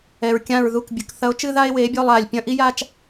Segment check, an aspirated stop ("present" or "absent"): absent